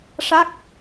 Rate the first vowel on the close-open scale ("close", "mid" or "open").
open